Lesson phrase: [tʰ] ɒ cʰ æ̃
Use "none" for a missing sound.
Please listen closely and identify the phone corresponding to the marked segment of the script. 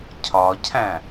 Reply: cʰ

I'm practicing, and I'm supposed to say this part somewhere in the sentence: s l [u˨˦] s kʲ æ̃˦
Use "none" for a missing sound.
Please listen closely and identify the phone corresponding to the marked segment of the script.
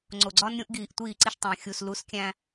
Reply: u˨˦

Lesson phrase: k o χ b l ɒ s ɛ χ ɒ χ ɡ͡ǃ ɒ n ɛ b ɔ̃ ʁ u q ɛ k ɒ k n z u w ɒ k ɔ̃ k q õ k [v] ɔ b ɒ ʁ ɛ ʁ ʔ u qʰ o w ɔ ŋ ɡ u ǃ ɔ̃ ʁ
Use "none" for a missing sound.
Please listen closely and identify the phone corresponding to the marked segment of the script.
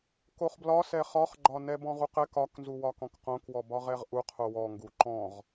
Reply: w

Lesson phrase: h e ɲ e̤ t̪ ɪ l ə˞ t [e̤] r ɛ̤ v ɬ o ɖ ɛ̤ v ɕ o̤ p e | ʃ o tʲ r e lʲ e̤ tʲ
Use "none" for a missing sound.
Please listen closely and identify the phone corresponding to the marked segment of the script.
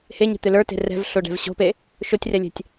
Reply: e̤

